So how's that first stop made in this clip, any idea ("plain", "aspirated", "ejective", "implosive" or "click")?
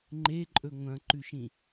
click